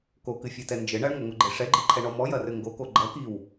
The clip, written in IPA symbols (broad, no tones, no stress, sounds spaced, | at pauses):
k o k ɨ fʲ ɛ t ɛ n d͡ʒ ɘ ɳ ɐ ɳ ŋʷ ɐ ŋʷ ɘ ɡ͡ǃ e ʂ ɛ ɡ͡ǃ i ǃʰ ɛ ɳ ɔ m ɔ j ɐ r ɘ ŋ ɡ o k o ɡ͡ǃ ɐ k i w